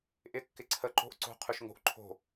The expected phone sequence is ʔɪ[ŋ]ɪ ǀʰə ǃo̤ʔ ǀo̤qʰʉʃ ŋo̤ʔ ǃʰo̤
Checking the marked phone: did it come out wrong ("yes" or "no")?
yes